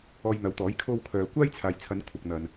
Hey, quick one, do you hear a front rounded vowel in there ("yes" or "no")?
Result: yes